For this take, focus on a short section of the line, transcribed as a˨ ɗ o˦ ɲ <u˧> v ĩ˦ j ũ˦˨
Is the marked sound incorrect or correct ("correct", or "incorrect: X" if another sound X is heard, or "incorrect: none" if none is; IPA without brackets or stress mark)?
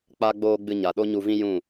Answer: correct